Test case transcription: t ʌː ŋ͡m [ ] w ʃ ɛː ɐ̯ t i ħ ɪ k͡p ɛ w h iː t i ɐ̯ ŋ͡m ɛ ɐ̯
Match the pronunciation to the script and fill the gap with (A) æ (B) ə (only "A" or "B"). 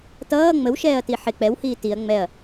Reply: B